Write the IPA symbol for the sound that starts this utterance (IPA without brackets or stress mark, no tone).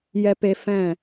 j